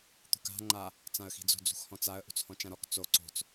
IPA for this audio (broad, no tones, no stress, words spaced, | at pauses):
t̪ṳka̤ ŋ͡ǃa | t͡sãə̯xi̤d͡zo̤ d͡zṳxhɔ̃t͡saə̯ ʔṳt͡shɔ̃t͡ʃãɾɔk t͡so ǀo̤t͡s